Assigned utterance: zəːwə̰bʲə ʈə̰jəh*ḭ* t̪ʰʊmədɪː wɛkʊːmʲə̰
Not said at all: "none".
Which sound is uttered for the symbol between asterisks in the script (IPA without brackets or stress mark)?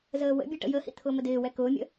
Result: ḭ